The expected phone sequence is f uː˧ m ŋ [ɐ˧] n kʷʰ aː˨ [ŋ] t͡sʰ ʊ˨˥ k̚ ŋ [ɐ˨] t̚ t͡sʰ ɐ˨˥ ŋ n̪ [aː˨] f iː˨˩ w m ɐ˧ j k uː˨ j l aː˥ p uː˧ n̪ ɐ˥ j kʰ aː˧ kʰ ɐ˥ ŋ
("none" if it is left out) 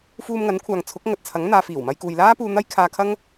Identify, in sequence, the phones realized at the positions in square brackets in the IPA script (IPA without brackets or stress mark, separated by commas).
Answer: ɐ˨˥, ŋ, ɐ˨, aː˨